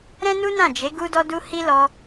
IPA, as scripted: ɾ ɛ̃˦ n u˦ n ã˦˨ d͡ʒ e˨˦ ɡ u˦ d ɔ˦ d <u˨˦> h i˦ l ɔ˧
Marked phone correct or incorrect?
incorrect